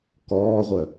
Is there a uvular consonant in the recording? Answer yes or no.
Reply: yes